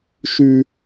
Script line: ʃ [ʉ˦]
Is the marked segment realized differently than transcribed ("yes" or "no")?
no